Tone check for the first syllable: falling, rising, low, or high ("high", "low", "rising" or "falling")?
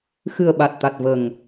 low